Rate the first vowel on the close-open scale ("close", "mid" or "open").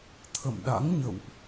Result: mid